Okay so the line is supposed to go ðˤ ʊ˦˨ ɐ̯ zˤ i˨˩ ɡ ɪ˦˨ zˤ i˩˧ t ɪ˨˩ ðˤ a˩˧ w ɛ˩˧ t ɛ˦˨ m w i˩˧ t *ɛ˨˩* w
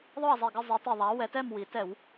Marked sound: incorrect: ɛ˧˩˧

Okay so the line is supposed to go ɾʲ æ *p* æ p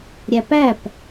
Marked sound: correct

